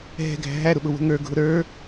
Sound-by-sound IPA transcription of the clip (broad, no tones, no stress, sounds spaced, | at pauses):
ɦ ɛ̤ ɡʱ æ̤ ɦ æ ɾ ʊ ɓ ʊ w ə̤ ŋ ə˞ ɡʱ ʊ ɾ ə˞